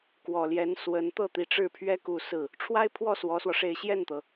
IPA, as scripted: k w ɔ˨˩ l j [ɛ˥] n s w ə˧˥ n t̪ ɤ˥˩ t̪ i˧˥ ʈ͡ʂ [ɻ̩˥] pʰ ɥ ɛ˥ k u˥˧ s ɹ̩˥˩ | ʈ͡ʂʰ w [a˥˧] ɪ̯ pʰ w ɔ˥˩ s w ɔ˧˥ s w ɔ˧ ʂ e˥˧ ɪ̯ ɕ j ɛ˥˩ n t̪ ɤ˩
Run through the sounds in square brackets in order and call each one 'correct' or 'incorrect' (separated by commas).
incorrect, incorrect, incorrect